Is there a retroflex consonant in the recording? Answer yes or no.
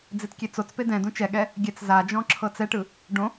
yes